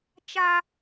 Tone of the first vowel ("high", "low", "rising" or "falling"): high